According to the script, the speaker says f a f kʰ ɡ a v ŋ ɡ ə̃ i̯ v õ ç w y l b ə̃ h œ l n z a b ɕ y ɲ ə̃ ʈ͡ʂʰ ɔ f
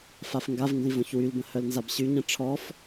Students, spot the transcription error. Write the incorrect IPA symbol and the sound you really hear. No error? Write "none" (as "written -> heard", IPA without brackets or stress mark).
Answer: kʰ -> ŋ